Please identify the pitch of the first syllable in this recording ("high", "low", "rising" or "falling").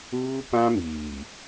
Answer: high